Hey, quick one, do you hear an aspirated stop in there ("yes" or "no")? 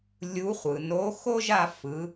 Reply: no